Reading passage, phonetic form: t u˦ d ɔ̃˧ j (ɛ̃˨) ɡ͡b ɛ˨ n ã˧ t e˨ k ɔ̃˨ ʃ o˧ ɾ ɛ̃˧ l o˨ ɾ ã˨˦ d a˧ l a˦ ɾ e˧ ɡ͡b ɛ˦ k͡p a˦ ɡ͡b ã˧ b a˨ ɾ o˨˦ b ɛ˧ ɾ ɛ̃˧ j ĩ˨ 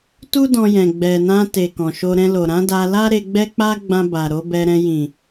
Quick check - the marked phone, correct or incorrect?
correct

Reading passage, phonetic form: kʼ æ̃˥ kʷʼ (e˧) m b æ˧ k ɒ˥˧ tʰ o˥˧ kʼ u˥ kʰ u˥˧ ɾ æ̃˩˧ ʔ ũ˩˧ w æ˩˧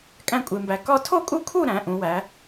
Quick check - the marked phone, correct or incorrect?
correct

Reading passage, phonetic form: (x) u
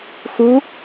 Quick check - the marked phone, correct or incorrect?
correct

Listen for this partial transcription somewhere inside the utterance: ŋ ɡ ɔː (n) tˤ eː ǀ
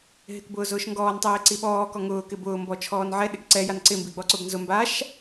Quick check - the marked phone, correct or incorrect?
correct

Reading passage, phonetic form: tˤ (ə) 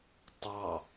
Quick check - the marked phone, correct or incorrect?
incorrect: ɑ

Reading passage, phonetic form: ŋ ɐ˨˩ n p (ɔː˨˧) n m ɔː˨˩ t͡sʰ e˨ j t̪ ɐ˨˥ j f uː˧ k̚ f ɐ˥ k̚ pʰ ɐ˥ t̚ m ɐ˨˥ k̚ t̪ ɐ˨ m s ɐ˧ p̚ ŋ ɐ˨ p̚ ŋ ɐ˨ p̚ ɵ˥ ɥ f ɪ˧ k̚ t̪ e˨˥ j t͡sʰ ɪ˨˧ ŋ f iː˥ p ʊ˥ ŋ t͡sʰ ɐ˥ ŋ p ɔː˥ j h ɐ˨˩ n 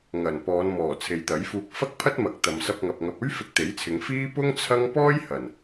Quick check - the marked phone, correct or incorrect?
correct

